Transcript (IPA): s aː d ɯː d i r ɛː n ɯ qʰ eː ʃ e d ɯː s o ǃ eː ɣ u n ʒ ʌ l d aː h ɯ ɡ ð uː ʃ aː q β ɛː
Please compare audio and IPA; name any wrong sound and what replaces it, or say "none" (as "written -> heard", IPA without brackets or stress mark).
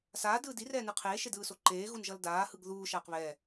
none